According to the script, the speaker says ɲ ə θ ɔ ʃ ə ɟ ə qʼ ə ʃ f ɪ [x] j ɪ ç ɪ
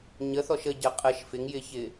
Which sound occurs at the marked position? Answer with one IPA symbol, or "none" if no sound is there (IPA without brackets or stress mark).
ŋ